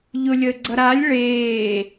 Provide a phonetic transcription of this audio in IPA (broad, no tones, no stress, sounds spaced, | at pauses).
ʎ ʊ lʲ əː ɡ͡ǀ ʌ ɾ a lʲ ɭ eː